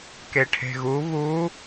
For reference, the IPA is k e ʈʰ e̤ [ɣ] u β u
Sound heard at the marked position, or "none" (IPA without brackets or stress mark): ɣ